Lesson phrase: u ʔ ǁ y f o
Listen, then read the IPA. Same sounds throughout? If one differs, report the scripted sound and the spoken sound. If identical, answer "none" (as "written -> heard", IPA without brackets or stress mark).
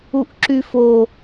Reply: none